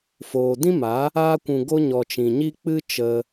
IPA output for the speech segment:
f oː˨ d ĩ˦ m a˨˦ | aː˧ kʷ ũ˨ ɡ o˧ ɲ ɔ˨ t͡ʃ ĩ˨ ɲ i˦ k͡p ɨ˦ t͡ʃ ə˧

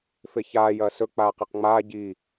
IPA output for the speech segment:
f e ç aː j ɐː s ɵ k͡p aː q e q ŋ͡m aː ɟ i

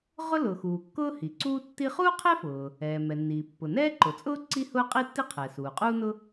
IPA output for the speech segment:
ʁ ʊ˥ l ʊː˩ x uː˩ kː ʊː˥ h i˩ ǀ uː˥ tː i˥ χ uː˥ qʰ ɛ˥ f ʊː˩ | ɛː˩ m ɛ˩ nː iː˩ pː ʊ˩ n ɛː˥ ǃ ʊ˩ t͡sʼ ʊː˥ ǀ i˥ h ʊː˥ qʼ i˥ tː i˥ qʰ ɛ˩ s uː˩ qʼ uː˥ n ʊ˥

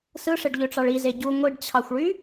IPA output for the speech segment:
s ɯ ʂ e ɖ ʎ ø ʈ͡ʂ ɑ ɭ i z e ɟ u ŋʷ i ɖ t͡ɕʰ ɑ xʷ ɭ y

